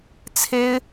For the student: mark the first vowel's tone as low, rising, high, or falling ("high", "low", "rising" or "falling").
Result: high